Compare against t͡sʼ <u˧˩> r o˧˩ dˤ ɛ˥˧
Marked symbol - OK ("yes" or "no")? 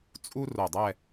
no